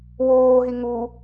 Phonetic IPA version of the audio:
w oː ɦ i ŋ u

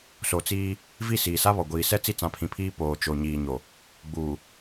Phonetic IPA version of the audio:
s o˨ t͡s iː˦ | v i˦˨ s iː˨ s a˦ β ɔ˨ ɡʷ iː˨ s ɛ˦ t͡s i˦ t͡s ã˨˦ pʰ ĩ˨ pʰ iː˦ p oː˨ t͡ʃ o˨ ɲ iː˨ ɲ o˨ | ɡ͡b uː˨

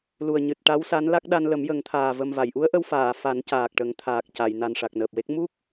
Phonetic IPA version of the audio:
l u˨˩ ə̯ ɲ ɨ˨˩ t̚ ʈ a˧˥ w s a˧˥ n l a˦˥ k̚ ɗ a˧ n l ə˨˩˦ m j ə˨˩˦ ŋ t̪ʰ aː˨˩ v ə˨˩ m v a˨˩˨ j ʔ u˧˥ ə̯ ʔ ə˧ w f aː˨˩˨ f a˨˩˦ n c aː˨˩ k̚ ʈ ə˨˩˦ ŋ t̪ʰ aː˨˩ k̚ c a˨˩˨ j n a˨˩ n ʂ a˨˩ k̚ n əː˨˩ p̚ w e˦˥ k̚ m u˦˥ k̚

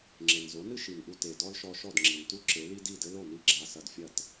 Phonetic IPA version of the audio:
ŋ͡ǁ e˩ n z o˩˥ n ɨ˥ ʃ i˩ n ʔ u˧ t e˩ d ɔ˥ l ʃ ɔ˧ ʃ ɔ˥˩ d ŋ͡ǁ i˩ n t u˥ ǁ e˩˥ l i˥ d i˥˩ d ɘ˥ l o˥˩ n i˥˩ ɡ͡ǁ a˧ s ɐ˧ d fʲ ɐ˥˩ t

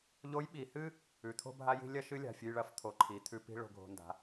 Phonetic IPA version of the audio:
ʎ o˧˥ j ɓ i˩˧ h ɨ˥ | ʉ˩˧ t̪ʰ o̤˥ bʱ a˥ j i̤˥ lʲ ɐ˥ ʃ ɨ˧˥ lʲ a̤˩ fʲ ʉ˧ j ɭ ɐ˧˥ f t̪ʰ o˩ ǃʰ i˩˧ t̪ʰ ʉ˧ p i̤˥ ɭ o̤˧ ɡʱ o̤˧ n d a̤˩˧

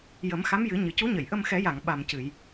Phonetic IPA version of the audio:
j ə˨˩˦ m x a˧˥ m j ɨ˨˩˦ ɲ ɨ˨˩ c u˧˥ ɲ ə˨˩˨ j ʔ ə˧ m x ɛ˨˩˦ j a˨˩˨ ŋ ɓ a˨˩ m c ɨ˨˩˨ j

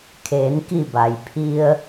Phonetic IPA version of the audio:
kʰ eː˩˧ n k i˧˩ b a˩ j pʰ i˧ ə̯

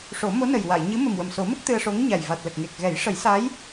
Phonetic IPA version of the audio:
ʂ o˨˩˦ m o˧˥ n ə˨˩ j w a˨˩˨ j ɲ ɨ˧˥ m ə˨˩ m w ə˨˩ m s o˨˩˦ m ə˦˥ k̚ t̪ ɨ˧ ə̯ ʂ o˧˥ ŋ ɲ a˨˩ j v a˨˩ t̚ l ə˨˩ k̚ ŋ e˨˩ k̚ ɣ ɛ˨˩˦ j ʂ ə˨˩˦ j s a˧˥ j

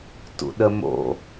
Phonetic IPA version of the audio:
t ṵ ɗ ə m o̰

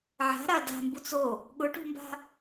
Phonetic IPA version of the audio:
ʕ a̤ ɾ a d a̤ m b u t͡s o | ɠ ʊ ʈ ṳ m b a̤

